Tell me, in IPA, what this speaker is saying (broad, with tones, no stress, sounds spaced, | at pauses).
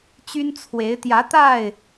t͡ɕ y˦ n t͡sʰ w e˨˦ ɪ̯ t̪ j ä˨˦ t̪ a˥˨ ɪ̯